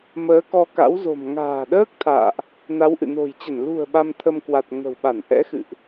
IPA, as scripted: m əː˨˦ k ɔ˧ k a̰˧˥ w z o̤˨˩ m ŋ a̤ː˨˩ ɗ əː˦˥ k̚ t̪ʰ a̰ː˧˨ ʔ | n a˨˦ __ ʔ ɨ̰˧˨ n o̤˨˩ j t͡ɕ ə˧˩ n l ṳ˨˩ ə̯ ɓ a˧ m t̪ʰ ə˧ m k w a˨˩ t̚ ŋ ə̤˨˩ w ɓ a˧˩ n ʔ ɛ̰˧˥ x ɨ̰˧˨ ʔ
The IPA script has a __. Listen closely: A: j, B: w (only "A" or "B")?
B